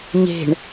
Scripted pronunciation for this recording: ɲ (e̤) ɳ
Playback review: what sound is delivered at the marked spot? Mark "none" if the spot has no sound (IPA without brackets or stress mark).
e̤